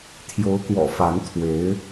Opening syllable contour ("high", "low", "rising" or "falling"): rising